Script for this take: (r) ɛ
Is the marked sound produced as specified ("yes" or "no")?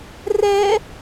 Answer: yes